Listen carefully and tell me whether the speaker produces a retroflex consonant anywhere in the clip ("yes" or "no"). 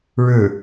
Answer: yes